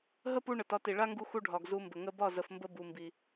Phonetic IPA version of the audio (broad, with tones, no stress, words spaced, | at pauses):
ɦə˦pu˧ ɳə˨tɒ˧ti˨ ɭa˦ŋɡu˧xu˧ ɖʱɒ˨ɡzu˧mbə˨ ŋə˧bɒ˦˨zə˨fmbə˧ bu˨mbi˨